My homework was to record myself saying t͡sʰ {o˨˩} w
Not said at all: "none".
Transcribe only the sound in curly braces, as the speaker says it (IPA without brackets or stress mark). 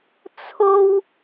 o˥